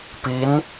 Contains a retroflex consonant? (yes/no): no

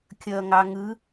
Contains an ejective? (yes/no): no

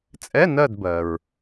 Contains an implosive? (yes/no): no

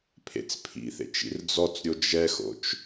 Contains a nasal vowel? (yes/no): no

